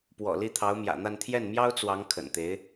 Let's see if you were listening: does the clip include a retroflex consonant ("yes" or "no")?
no